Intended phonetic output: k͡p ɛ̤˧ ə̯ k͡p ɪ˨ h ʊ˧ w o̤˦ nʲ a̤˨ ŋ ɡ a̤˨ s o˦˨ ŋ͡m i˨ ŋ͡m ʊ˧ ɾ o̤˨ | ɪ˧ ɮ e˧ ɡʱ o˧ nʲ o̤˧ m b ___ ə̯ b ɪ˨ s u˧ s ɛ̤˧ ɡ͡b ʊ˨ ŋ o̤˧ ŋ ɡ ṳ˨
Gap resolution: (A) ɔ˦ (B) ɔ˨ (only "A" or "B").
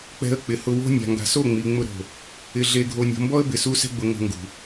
A